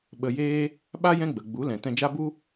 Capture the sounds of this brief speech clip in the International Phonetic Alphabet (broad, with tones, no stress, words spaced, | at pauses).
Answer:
ɓə˨jeː˧ | ɓa˦ jɛ̃˦ɡ͡bə˨ɡ͡bu˨˦ lɛ̃˨tɛ̃˧ d͡ʒa˦bu˦